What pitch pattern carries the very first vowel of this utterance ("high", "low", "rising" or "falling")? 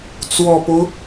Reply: low